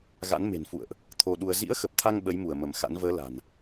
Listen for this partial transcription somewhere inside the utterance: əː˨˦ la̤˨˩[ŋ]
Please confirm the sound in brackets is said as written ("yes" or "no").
no